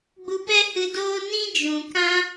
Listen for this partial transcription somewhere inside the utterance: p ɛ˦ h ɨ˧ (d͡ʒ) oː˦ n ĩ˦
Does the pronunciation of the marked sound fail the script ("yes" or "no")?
yes